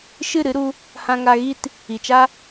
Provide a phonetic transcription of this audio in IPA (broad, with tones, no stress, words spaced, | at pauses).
ʃɨ˦˨ɾɨ˦ɾu˧ | hã˧ŋa˧ɣi˦t | i˨t͡ʃa˦